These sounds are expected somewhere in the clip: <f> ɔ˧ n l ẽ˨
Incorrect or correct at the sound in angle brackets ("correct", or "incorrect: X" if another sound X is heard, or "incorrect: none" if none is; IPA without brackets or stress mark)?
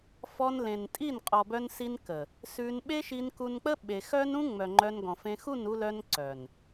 correct